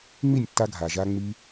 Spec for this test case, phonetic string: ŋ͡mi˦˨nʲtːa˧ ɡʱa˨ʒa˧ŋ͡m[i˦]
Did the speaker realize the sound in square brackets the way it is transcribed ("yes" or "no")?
no